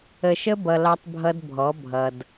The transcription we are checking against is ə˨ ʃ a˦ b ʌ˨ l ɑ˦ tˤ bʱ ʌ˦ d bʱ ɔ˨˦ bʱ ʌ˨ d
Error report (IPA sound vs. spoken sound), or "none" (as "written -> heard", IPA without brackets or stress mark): a˦ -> ə˦